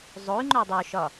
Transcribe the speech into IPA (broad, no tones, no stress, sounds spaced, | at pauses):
zˤ o y̯ ŋ͡ǃ œ dˤ o ʃ ɒ